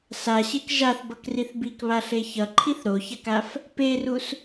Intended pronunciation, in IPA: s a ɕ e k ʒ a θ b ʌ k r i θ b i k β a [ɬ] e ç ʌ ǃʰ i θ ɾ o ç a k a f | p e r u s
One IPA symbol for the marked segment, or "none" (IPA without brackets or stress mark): ɬ